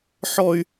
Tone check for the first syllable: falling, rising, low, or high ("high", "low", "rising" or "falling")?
high